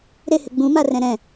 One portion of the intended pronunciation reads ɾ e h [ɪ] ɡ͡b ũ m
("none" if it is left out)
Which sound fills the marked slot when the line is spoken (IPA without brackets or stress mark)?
ɪ